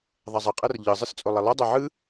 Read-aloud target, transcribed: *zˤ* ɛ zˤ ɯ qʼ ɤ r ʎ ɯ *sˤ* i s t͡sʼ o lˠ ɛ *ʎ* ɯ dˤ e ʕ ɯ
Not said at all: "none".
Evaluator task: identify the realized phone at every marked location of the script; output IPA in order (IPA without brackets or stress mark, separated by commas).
ðˤ, zˤ, lˠ